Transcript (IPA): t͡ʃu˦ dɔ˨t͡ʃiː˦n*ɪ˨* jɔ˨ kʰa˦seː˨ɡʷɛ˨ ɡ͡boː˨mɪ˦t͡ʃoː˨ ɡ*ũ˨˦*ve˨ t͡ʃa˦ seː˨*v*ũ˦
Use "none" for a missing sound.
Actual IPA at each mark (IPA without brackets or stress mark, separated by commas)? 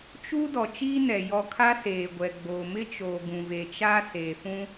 ɛ˨, ũ˨, f